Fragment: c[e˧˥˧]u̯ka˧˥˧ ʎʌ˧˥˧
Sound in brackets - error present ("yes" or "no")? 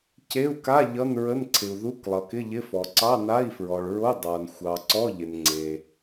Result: no